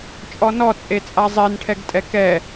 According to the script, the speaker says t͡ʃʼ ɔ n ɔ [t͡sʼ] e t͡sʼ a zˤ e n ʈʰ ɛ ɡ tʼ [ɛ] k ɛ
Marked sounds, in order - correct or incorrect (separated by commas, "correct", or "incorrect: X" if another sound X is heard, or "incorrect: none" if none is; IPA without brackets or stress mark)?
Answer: correct, correct